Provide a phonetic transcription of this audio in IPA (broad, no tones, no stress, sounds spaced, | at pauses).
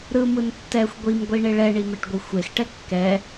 ɾ ɯ m ɯ n tː ɛ xʷ ɡʷ i m ɡʷ i ɳ e ɭ ɛ ɳ i m ɛ ʈ ɡʷ i xʷ e x ʈ ɛ kː ɛ